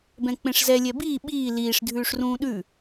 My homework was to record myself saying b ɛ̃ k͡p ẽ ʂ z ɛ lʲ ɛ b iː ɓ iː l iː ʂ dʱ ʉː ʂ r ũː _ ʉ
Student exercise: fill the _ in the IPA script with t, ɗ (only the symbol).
ɗ